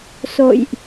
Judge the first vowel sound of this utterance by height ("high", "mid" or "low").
mid